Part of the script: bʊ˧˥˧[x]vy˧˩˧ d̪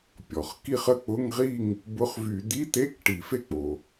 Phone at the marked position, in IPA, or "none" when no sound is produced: χ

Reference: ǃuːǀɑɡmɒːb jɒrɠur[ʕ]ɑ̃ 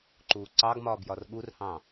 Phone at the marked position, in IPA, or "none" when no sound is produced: h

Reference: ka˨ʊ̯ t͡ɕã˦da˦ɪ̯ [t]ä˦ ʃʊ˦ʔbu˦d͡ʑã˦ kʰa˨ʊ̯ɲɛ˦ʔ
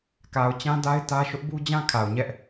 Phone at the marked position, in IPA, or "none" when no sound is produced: t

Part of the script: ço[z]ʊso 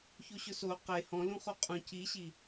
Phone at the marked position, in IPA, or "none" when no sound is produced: ɕ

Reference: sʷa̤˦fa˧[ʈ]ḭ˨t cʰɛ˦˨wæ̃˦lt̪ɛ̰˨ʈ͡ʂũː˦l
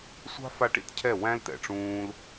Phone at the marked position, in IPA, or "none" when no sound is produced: ʈ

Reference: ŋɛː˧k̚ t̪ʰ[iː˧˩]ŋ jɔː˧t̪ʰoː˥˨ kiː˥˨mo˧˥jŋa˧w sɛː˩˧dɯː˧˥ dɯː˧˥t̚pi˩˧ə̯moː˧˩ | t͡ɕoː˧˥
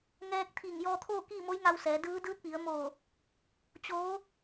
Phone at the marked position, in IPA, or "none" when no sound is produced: iː˧˩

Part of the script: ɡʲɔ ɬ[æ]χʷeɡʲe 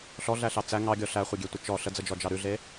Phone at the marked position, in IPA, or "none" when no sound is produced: æ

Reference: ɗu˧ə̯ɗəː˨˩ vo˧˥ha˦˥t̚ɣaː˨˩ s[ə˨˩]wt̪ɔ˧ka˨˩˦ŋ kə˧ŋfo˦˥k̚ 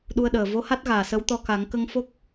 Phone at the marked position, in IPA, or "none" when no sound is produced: ə˧˥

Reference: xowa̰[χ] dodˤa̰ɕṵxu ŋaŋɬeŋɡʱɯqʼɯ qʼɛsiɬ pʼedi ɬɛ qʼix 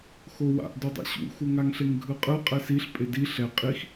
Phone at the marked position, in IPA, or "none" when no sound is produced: ʔ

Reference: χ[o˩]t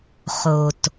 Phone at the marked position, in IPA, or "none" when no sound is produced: o˩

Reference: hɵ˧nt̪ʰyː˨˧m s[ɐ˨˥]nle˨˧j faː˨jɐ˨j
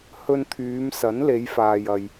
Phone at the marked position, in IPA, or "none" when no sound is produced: ɐ˨˥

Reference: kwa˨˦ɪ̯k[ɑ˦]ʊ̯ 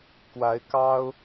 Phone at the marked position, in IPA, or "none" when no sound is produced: ɑ˦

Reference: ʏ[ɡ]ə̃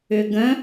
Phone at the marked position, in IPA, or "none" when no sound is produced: ɡ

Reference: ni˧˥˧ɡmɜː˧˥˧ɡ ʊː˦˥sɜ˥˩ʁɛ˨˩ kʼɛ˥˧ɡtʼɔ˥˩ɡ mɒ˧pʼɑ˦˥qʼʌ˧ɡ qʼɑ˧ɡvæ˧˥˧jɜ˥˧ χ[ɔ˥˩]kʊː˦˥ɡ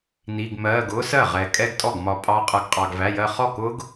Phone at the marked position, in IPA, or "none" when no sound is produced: ɔ˥˩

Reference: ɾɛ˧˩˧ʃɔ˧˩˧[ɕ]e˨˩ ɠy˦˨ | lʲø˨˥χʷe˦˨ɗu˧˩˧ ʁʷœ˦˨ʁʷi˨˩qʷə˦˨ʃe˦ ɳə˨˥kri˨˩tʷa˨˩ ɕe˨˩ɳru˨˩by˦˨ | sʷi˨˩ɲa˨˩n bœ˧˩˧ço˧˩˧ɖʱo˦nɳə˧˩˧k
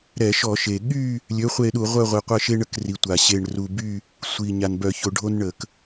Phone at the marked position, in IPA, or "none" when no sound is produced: ʃ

